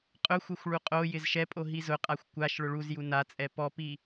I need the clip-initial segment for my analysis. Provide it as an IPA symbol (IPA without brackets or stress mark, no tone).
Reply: qʼ